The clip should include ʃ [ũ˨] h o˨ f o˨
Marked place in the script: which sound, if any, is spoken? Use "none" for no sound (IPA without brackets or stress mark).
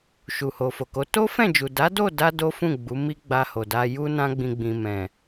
u˨